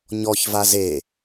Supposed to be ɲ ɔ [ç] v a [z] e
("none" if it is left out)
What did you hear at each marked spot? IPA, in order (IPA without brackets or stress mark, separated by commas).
ç, z